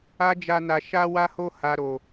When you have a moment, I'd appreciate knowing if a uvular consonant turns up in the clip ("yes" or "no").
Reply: no